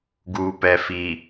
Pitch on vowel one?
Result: low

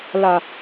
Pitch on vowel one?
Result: low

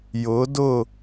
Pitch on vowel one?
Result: rising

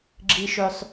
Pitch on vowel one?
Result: low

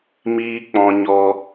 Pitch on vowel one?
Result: high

